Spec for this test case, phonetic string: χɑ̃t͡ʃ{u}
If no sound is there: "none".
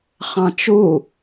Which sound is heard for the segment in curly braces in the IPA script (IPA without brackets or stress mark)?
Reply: u